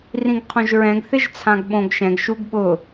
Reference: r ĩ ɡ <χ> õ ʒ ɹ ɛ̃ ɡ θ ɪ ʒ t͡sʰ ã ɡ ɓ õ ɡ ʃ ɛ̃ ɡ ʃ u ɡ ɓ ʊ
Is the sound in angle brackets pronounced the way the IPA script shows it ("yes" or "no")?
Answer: no